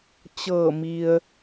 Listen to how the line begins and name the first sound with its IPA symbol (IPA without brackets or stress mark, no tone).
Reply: t͡ɕ